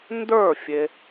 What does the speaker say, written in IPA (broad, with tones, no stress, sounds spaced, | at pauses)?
n d ə˞˥˩ fʲ e˨